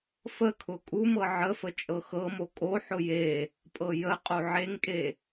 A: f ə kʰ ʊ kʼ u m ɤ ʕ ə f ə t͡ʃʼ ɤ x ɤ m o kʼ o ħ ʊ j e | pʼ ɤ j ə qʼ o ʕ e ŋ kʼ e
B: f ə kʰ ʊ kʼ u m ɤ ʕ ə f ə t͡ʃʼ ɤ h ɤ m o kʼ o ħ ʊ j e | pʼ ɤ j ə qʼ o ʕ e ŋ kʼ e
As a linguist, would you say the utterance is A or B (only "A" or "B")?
A